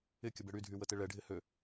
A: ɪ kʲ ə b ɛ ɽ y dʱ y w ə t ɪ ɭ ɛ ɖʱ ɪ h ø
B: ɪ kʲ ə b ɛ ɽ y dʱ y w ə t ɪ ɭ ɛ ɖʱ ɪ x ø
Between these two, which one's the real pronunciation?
A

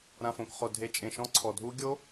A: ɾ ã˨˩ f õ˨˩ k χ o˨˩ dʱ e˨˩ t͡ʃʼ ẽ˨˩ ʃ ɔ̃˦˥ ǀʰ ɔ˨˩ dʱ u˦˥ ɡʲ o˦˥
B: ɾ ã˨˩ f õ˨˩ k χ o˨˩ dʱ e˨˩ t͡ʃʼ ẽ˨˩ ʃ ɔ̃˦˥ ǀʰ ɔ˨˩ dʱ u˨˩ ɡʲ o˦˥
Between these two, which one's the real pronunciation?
A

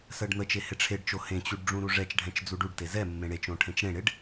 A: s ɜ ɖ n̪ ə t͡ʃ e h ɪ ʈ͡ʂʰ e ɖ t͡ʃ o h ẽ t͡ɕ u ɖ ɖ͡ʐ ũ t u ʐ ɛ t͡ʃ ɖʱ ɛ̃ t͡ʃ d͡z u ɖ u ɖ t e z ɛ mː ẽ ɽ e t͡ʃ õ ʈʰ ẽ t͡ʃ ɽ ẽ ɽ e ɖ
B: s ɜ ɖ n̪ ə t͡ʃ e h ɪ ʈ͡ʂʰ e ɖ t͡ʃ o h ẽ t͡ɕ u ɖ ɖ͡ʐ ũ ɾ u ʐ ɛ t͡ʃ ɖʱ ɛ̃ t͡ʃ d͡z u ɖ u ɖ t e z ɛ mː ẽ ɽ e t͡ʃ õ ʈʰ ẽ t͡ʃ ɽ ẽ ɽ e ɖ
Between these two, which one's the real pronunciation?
B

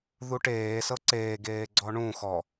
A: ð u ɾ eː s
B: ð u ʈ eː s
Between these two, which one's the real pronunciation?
B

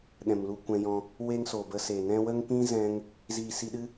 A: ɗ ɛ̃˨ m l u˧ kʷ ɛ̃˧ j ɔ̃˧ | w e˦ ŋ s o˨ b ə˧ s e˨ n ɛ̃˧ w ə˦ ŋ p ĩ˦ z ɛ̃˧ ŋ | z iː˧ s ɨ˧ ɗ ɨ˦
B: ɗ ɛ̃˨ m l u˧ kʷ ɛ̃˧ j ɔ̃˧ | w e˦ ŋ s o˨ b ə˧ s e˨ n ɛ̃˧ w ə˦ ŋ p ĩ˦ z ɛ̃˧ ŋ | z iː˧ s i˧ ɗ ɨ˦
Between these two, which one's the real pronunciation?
B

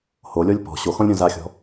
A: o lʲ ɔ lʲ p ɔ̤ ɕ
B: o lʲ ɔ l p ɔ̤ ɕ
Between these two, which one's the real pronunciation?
A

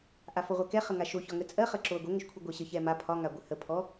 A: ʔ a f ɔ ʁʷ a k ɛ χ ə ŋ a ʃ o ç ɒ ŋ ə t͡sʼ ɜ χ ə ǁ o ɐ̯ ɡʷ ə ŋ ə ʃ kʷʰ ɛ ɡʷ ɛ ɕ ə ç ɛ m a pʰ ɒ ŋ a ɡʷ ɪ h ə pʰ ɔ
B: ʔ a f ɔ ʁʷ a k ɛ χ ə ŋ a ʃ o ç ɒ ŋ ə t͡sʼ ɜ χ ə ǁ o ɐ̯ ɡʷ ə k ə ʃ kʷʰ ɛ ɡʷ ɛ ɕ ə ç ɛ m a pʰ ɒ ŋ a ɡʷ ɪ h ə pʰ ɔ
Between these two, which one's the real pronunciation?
A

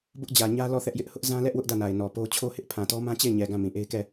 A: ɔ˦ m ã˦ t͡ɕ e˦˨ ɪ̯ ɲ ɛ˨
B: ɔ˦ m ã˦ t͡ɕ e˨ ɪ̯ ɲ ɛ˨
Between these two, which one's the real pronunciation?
A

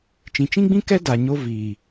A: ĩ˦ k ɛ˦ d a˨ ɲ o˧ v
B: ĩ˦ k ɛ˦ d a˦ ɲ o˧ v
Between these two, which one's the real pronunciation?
A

